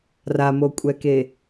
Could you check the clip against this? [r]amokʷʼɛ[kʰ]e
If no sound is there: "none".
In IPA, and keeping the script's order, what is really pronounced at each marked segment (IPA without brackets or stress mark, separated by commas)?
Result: r, k